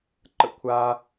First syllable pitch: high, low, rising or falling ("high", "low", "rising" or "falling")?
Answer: falling